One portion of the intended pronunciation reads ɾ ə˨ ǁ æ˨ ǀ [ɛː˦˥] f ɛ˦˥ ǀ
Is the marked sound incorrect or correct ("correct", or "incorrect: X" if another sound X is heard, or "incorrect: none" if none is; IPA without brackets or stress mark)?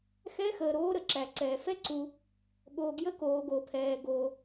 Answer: incorrect: ɛː˨